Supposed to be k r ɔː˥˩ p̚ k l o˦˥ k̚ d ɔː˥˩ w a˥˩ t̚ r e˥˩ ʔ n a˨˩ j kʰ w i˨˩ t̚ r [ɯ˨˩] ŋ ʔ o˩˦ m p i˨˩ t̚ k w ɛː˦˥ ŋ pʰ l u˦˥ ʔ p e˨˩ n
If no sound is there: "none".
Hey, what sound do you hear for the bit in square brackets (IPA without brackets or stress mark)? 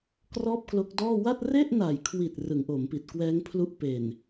ɯ˩˦